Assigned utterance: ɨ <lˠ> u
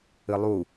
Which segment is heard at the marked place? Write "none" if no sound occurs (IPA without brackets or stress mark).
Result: lˠ